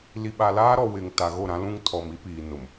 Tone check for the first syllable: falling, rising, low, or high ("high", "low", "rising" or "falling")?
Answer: low